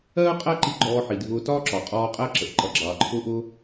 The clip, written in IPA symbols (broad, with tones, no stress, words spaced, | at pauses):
ɜː˥qʼæ˥ǃi˧ ɡ͡ǃɔː˧ħi˩ dʱʊː˧tɒː˥ǁɒ˩qʼɔː˧ qʼæ˧ǁə˩ʔ ǃʌ˩ɡ͡ǁɑː˩ǃʰʊː˧ʔʊː˧